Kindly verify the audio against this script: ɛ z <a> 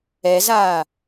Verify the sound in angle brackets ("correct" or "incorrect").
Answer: incorrect